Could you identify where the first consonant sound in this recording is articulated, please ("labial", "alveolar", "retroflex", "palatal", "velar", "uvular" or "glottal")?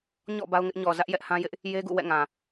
palatal